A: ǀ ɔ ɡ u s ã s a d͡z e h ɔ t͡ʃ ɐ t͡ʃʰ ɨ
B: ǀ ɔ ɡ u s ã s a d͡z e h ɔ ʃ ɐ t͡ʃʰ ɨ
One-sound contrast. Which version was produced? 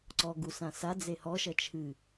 B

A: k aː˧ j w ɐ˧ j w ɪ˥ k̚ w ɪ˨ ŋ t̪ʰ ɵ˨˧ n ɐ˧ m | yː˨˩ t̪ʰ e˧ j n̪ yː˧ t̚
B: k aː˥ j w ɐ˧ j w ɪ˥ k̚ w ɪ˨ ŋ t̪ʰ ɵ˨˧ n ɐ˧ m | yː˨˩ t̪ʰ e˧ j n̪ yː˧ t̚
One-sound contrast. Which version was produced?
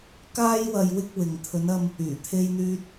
B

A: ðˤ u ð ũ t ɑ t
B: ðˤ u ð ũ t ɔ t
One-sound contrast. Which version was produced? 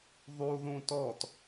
B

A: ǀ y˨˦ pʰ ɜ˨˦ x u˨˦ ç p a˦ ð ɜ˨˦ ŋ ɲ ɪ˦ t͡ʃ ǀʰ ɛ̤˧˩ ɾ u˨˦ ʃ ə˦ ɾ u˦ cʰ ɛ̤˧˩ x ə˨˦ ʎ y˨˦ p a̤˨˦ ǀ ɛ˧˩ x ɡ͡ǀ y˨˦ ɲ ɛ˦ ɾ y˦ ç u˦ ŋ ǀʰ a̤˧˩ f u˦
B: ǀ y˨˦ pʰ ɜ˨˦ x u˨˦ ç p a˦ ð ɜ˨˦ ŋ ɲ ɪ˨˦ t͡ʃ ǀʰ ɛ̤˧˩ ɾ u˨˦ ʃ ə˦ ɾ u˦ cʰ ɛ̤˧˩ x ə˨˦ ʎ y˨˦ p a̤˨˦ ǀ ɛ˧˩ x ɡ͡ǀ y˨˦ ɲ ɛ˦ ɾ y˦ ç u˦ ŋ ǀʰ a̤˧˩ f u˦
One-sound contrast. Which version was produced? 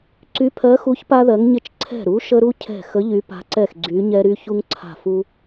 A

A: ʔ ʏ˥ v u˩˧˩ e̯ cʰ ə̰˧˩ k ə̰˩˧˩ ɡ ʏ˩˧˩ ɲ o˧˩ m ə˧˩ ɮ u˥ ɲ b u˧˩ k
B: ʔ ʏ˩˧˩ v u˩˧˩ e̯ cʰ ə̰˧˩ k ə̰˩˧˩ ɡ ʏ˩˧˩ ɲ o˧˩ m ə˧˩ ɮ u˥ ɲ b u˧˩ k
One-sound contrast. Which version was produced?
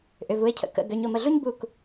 B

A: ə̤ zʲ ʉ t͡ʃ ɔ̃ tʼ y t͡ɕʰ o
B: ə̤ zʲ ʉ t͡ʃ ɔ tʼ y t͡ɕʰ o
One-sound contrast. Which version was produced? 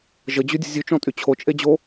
A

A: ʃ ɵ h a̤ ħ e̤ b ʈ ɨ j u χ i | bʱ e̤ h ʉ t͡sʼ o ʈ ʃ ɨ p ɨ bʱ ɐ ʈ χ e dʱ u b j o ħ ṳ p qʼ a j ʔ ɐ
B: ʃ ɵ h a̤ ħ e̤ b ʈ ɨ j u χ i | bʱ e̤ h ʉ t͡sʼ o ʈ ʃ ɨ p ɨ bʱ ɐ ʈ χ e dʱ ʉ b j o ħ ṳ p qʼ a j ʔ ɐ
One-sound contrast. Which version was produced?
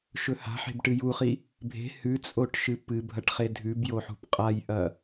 B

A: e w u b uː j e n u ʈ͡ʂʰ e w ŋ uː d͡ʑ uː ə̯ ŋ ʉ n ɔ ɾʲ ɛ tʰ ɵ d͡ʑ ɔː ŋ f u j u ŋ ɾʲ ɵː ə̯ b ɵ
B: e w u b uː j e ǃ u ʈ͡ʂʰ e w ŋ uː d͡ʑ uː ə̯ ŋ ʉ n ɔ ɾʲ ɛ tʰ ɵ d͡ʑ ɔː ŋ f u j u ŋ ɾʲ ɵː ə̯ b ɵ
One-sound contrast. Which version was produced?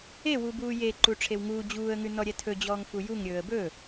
B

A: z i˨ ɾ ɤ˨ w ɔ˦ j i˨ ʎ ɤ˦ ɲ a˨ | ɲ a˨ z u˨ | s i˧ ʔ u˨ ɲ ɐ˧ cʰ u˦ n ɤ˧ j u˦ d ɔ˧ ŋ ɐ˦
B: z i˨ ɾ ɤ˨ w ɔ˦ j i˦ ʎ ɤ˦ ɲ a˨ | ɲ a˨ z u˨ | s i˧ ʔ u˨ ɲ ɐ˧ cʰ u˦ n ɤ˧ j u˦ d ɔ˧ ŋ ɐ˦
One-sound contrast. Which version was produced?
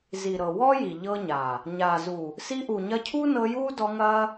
A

